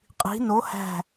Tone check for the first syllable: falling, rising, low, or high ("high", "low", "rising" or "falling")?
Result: rising